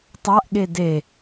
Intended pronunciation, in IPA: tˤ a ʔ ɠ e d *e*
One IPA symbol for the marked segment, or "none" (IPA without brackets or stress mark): e